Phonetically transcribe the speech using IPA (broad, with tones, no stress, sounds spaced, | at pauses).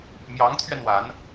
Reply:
m j ɑ˧˥ ŋ t̪ʰ ɥ ɛ˧ n w a˧˥ n